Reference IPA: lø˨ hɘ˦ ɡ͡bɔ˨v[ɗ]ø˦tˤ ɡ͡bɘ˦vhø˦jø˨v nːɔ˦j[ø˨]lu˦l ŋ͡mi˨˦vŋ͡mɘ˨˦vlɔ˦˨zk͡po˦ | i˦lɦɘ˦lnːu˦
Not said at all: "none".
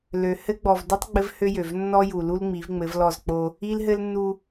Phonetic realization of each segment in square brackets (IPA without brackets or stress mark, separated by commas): d, u˨